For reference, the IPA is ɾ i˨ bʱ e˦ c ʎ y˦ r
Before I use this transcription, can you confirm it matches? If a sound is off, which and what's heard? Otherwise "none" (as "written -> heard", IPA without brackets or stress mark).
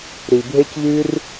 none